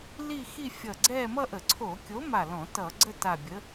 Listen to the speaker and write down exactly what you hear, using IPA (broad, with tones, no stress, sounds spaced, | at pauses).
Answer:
l i˥˧ x i˥˧ fʲ ʌ˧˩ ɡ͡ǀ ɛ˥˧ m ʌ˥˧ ʔ ə˧˩˧ ǀʰ o˧˩˧ kʲ o˨˥ m a˧˩ l ɔ̃˧˩˧ t ʌ˧˩˧ ɡ͡ǀ ə˥˧ t a˧˩ bʲ ə˨˥